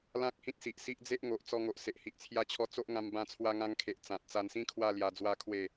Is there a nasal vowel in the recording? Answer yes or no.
yes